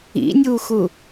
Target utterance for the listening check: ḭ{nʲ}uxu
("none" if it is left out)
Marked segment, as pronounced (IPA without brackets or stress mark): nʲ